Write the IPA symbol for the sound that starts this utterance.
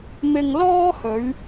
m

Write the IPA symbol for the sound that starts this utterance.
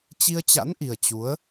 t͡ɕ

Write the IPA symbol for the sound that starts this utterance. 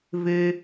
v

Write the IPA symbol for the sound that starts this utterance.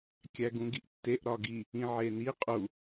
kʲ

